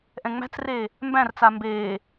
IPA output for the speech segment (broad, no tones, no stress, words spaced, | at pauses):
ʔɛ̃ŋ͡mæ̤t͡sreː | mbæ̃rt͡sa mbeː